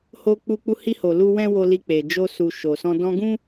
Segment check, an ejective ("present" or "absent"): absent